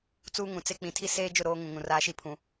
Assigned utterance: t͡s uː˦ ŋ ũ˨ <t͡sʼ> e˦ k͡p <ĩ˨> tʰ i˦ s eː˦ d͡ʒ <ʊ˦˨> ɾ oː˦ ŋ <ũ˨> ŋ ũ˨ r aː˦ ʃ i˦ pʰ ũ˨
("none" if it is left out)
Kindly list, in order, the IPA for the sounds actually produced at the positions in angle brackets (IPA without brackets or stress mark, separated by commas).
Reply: t͡s, ĩ˨, ʊ˦˨, ũ˨